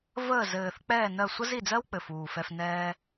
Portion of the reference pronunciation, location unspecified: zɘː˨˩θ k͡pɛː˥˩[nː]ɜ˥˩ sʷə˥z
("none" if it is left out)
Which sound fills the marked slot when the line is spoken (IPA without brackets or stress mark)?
n